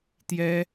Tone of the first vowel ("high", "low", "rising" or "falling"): high